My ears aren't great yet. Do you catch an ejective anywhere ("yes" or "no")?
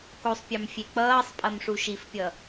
yes